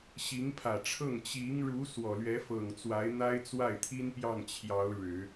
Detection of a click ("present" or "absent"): absent